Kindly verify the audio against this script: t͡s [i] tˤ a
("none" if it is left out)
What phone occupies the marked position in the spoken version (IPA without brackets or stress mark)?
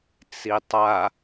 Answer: i